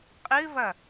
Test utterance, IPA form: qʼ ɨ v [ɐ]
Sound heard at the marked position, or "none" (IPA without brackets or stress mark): ɐ